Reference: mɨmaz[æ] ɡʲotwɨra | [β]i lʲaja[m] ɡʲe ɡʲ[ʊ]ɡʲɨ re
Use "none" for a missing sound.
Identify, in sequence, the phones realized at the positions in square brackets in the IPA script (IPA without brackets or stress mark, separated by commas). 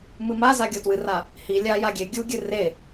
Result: a, h, none, u